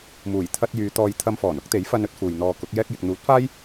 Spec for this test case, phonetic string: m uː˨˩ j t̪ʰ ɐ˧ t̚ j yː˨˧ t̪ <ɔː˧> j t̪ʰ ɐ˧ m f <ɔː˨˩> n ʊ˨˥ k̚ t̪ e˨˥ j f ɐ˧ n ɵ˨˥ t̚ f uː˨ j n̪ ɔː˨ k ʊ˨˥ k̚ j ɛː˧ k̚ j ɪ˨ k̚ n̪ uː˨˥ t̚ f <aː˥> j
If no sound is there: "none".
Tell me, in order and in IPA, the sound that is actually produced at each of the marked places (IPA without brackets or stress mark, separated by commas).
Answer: ɔː˧, ɔː˨˩, aː˥